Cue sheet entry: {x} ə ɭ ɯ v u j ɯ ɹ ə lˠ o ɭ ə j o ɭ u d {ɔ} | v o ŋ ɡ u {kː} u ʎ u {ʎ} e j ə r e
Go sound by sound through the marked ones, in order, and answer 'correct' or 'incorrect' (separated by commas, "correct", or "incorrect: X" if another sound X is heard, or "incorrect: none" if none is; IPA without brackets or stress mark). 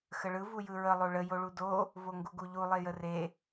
correct, incorrect: o, incorrect: ɡ, incorrect: lˠ